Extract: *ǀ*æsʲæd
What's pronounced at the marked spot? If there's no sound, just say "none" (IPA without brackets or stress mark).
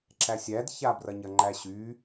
ǁ